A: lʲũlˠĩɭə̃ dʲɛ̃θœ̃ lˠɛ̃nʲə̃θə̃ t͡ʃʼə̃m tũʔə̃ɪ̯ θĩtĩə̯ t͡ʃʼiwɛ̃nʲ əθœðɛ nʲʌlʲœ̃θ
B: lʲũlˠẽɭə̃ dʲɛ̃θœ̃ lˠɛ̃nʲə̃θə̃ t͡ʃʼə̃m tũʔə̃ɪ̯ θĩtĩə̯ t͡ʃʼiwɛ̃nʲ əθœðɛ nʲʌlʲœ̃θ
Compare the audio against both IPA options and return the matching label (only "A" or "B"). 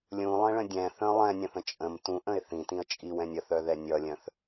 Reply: B